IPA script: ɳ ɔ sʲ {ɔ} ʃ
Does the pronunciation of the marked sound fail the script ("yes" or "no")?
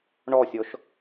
no